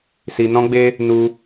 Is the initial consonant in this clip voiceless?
yes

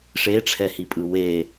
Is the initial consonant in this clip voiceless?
yes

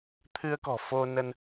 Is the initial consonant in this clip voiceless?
yes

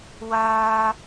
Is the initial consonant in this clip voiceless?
no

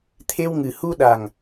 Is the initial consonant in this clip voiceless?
yes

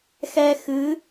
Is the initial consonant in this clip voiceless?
yes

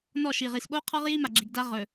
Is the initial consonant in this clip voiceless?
no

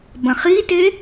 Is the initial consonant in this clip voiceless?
no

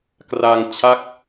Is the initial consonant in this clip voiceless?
yes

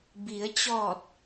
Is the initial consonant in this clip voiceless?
no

